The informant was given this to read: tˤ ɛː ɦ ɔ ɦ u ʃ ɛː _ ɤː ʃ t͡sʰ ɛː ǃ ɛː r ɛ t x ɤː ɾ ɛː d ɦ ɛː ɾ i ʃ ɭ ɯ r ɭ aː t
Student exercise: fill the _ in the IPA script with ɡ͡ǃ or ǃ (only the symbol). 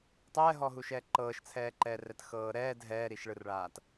ǃ